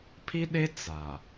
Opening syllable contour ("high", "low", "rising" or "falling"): high